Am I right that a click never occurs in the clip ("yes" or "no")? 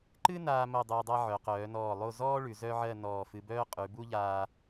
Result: no